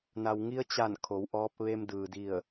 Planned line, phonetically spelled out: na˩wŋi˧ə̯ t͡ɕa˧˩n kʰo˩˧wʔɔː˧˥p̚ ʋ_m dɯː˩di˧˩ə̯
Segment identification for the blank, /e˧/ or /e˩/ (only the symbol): e˧